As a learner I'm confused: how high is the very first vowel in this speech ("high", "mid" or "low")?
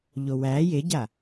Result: mid